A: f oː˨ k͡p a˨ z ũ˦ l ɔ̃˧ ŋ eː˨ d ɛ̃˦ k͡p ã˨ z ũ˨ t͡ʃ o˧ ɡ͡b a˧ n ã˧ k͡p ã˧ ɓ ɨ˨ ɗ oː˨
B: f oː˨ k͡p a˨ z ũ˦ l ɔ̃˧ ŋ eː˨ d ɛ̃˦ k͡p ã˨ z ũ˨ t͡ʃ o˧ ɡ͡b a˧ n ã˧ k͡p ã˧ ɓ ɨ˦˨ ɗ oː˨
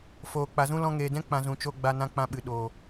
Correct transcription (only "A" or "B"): A